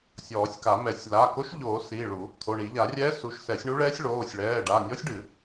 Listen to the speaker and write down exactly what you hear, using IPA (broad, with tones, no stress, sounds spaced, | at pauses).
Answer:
sʲ ɔː˨˩˦ sʲ k a˨˩˦ m ɛ˨˩˦ sʲ l a˩˧˩ k o˧˥ ʃ ʎ oː˨˩˦ s i˩˧˩ ɭ u˨˩˦ | t̪ʰ o˩˧˩ ɳ i˨˩˦ ʎ a˨˩˦ rʲ ɛː˧˥ s u˩˧˩ ʃ s ɛ˨˩˦ sʲ ɳ u˧˥ ɭ ɛː˧˥ sʲ ɭ oː˩˧˩ sʲ ɭ ɛː˩˧˩ ɖ a˩˧˩ nʲ ɔ˧˥ sʲ ɖ ɨ˨˩˦